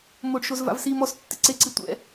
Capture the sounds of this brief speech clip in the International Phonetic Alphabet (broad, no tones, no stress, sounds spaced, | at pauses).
m o ɖ ʃ o z v a̰ v s i m ɔ s tː ɪ ǀ e ǀ i tʷ ɛ̰